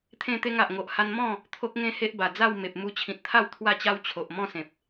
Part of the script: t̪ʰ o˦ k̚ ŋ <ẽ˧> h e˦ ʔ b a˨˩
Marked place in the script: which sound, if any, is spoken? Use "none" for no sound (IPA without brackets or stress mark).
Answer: ẽ˦